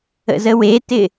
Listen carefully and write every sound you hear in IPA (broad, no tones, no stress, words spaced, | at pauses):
ə̰zəwetɪ